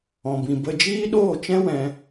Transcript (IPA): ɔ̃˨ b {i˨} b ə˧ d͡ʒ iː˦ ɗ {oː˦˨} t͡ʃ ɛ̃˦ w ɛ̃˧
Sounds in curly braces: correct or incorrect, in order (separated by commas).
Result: incorrect, correct